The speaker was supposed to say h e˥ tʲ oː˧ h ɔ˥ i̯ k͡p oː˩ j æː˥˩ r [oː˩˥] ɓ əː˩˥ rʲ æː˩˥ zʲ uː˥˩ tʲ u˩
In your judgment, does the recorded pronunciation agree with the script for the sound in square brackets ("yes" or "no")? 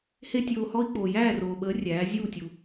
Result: no